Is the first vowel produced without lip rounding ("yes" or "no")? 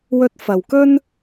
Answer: no